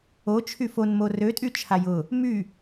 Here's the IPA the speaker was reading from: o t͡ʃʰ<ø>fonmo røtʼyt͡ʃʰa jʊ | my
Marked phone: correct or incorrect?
incorrect: y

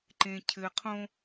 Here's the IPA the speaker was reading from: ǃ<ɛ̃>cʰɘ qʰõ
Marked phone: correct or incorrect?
incorrect: ẽ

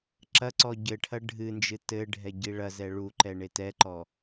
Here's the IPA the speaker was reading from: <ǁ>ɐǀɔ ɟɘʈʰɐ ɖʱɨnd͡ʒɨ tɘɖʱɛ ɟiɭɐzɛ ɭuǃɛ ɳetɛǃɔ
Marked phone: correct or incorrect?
correct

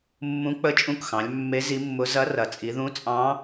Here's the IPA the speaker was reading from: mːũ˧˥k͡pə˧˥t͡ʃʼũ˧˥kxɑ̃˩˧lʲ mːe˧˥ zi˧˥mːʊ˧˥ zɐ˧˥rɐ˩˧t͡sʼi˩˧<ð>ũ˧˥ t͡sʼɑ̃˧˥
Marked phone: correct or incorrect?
correct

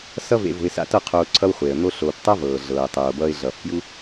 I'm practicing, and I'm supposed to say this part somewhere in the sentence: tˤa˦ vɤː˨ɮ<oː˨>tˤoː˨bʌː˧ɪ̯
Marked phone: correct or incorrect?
incorrect: ɤː˨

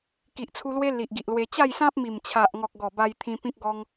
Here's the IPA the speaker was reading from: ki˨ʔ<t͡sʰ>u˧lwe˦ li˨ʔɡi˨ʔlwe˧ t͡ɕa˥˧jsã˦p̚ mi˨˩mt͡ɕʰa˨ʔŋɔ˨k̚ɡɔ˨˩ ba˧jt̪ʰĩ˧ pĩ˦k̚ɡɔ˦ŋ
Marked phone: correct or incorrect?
correct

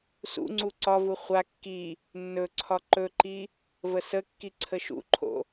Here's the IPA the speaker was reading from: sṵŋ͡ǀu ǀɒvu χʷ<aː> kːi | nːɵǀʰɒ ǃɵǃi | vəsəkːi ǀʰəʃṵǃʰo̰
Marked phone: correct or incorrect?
incorrect: a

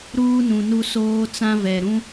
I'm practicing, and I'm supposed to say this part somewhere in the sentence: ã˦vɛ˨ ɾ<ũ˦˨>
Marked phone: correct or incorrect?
incorrect: ũ˦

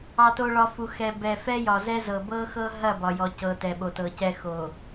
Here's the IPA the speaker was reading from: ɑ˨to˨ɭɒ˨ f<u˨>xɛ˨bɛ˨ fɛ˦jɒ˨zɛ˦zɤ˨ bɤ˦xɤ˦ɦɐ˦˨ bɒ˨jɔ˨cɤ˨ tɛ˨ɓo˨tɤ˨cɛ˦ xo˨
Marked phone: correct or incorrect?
correct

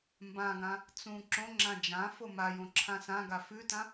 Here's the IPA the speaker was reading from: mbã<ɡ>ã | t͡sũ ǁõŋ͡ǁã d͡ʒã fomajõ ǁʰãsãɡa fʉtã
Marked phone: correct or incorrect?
correct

